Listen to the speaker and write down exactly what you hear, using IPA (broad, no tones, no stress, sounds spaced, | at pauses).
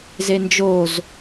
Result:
z e n d͡ʒ o z